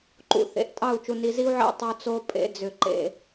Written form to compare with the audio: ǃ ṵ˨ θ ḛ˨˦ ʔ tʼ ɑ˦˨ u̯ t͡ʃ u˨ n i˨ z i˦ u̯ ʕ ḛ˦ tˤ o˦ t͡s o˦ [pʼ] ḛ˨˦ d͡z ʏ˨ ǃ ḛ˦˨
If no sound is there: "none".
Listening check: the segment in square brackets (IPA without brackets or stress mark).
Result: pʼ